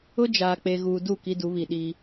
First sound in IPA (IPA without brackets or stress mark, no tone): ʊ